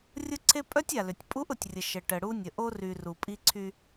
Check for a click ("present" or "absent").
present